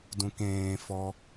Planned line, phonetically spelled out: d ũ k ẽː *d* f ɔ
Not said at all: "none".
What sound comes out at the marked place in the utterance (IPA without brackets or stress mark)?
none